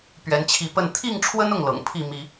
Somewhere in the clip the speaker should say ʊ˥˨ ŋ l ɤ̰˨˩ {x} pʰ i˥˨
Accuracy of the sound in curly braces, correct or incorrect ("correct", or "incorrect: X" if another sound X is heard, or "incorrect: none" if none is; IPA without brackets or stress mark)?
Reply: incorrect: ŋ